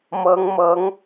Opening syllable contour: rising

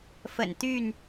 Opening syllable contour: low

